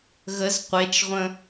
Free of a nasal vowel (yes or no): no